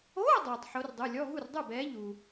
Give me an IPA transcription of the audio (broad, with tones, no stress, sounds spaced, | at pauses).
oː˧˥˧ dˤ uː˩ tˤ ħ o˨˦ r dˤ u˩˧˩ lʲ ɔ˧˥˧ ɦ u˥˩ r dˤ u˥˩ b ɛː˨˦ ʎ uː˩